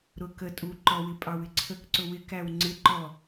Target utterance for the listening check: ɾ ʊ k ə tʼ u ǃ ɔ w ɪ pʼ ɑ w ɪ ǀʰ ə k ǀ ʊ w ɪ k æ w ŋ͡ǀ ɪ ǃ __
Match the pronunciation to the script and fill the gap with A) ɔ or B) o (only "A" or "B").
A